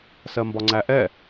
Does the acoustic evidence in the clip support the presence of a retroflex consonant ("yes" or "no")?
no